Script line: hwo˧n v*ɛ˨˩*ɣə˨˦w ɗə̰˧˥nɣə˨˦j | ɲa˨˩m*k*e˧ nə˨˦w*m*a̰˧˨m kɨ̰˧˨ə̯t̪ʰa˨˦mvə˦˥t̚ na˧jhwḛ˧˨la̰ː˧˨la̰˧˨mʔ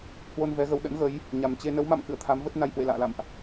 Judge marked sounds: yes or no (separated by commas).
no, no, yes